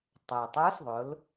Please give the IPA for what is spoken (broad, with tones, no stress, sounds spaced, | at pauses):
tˤ ə˞˩ tˤ ə˞˧˥ s ðˤ ʊ˩˧ l